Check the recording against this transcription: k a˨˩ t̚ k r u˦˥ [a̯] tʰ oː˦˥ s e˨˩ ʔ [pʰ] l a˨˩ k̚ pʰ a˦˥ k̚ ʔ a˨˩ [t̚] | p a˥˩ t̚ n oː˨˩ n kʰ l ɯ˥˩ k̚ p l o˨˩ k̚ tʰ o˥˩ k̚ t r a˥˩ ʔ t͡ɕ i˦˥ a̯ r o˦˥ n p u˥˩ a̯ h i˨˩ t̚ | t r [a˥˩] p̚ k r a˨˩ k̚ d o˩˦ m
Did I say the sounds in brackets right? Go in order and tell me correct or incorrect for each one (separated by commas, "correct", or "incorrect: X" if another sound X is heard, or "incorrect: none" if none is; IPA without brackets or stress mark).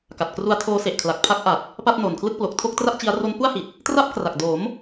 correct, incorrect: kʰ, correct, correct